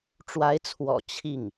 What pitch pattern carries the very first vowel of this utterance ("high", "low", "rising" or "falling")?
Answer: rising